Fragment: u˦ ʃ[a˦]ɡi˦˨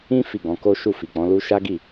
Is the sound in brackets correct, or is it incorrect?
correct